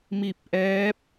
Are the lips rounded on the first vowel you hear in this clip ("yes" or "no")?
no